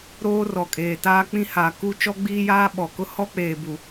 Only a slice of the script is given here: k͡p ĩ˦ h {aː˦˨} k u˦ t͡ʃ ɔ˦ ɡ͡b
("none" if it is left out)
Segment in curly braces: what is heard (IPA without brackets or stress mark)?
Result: aː˨